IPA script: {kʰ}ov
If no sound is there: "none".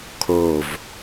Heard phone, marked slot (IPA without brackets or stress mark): kʰ